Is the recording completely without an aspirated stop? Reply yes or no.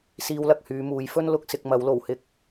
yes